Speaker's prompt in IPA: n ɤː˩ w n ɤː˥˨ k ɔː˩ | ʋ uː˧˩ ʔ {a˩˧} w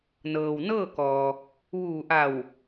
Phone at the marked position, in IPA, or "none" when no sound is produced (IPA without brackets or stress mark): a˧˩